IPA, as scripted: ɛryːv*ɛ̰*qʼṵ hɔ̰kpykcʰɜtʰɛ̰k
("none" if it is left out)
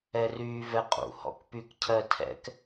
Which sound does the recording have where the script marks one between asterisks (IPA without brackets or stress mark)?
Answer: ɛ